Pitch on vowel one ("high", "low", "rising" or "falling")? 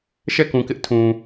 falling